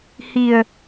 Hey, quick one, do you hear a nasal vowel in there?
no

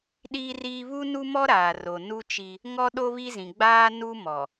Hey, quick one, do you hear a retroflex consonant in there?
no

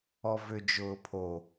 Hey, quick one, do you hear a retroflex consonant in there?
no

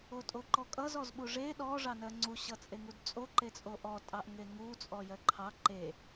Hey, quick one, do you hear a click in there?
yes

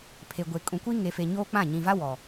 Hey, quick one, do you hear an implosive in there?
no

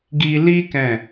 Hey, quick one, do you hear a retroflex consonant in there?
no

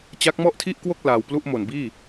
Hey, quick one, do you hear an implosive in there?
no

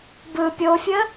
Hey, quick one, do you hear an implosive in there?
no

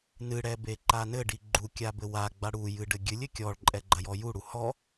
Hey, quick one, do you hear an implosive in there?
no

